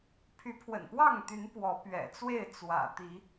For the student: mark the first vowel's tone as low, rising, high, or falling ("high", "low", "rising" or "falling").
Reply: rising